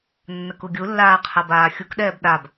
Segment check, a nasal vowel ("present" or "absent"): absent